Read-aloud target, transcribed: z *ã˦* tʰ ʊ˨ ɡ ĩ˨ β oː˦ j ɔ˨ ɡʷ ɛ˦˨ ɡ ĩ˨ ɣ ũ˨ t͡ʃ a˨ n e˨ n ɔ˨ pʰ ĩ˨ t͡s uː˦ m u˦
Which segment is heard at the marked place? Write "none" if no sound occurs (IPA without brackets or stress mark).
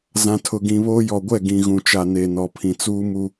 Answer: ã˨